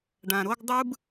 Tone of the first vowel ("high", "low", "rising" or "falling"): low